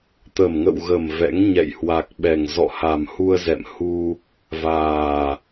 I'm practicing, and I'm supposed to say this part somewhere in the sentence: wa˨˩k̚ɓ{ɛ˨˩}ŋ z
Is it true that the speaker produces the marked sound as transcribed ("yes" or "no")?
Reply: yes